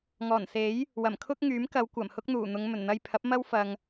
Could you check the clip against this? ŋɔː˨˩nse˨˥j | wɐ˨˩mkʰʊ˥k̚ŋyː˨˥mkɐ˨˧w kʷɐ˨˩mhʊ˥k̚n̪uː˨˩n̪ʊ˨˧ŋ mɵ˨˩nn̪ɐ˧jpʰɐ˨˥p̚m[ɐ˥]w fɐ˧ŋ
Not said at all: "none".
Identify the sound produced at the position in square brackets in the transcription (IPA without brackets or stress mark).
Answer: ɐ˥